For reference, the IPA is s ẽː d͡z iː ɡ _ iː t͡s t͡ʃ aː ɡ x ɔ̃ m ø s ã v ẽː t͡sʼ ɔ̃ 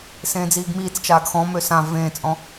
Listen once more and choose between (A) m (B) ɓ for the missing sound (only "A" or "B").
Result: A